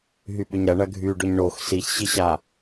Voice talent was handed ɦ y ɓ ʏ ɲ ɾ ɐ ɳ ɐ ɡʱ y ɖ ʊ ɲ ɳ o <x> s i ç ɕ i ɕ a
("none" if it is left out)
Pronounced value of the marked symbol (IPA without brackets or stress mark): x